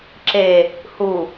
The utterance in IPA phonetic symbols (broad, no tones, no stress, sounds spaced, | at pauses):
ǁ e | h u